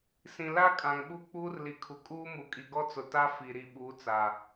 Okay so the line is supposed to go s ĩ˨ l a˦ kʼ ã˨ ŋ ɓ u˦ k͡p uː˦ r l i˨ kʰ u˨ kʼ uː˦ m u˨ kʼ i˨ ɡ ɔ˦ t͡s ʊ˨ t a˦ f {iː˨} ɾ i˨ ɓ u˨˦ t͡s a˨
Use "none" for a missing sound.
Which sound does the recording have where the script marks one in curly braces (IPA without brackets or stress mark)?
i˨